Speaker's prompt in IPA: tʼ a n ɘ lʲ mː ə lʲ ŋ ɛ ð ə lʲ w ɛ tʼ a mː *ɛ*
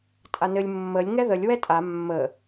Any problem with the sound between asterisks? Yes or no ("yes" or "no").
yes